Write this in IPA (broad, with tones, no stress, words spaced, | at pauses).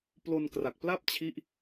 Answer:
plo˧nkra˨˩k̚pla˥˩p̚t͡ɕʰi˦˥ʔ